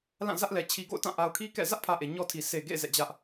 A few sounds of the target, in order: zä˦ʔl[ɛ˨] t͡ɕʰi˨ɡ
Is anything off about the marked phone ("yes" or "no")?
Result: no